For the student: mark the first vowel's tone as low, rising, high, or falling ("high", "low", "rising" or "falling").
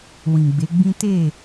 low